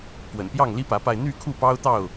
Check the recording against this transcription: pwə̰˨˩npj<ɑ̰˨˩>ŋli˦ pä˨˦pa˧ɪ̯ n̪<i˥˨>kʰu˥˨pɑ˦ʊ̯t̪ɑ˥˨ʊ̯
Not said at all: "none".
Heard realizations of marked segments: ɑ˥˨, y˥˨

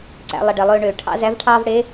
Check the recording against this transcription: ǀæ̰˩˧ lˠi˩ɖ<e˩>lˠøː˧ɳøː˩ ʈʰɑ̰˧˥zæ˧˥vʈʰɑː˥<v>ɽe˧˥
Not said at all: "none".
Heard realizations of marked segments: e˩, v

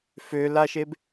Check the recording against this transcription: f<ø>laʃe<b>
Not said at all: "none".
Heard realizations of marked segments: ø, b

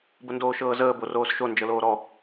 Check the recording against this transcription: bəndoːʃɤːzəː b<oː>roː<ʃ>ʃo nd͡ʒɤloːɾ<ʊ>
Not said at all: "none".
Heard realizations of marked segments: o, s, ɔ

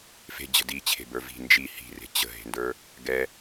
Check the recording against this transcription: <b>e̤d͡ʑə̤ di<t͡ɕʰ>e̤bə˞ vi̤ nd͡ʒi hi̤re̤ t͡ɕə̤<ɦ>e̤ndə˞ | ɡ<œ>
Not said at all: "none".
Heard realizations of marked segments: f, t͡ɕʰ, ɦ, ɛ

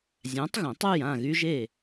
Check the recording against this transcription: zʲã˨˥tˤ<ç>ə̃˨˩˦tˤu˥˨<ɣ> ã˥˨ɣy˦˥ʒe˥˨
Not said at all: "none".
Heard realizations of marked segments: ɣ, j

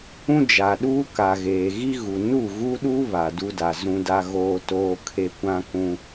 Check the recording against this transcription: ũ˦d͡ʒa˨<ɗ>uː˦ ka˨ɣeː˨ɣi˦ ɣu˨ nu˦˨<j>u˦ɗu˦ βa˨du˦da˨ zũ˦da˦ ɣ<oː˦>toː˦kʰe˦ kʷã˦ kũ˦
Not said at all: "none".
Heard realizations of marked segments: ɗ, ɣ, oː˦

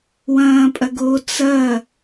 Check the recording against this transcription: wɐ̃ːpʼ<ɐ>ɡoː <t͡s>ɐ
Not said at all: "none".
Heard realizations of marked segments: ɐ, t͡s

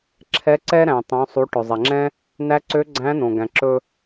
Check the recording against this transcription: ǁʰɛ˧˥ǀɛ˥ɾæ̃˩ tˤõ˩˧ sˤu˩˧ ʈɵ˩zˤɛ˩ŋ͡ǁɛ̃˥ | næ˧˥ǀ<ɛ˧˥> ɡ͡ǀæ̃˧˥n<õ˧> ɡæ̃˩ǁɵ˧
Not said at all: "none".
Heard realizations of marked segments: ø˧˥, õ˩

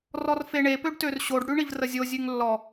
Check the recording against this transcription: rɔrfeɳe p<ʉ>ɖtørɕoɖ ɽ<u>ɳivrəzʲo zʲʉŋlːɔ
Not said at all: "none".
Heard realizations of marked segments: ø, ʉ

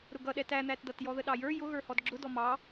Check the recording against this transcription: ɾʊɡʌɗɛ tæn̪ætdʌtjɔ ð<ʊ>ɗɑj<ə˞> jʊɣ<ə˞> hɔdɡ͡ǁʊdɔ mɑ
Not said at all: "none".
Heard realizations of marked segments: ə, ə˞, ə˞

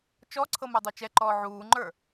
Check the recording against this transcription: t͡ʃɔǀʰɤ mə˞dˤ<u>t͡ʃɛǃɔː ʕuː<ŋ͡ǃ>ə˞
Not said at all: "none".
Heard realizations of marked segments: u, ŋ͡ǃ

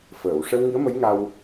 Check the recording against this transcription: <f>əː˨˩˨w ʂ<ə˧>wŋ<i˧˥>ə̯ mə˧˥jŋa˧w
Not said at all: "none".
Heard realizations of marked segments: f, ə˧, i˧˥

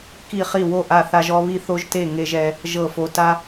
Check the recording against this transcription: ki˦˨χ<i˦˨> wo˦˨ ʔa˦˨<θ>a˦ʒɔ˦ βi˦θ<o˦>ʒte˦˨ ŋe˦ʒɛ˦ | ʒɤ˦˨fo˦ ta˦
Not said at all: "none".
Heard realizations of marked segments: i˦˨, θ, o˦

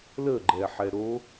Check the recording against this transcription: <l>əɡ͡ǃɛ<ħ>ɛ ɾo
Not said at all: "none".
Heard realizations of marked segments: l, ħ

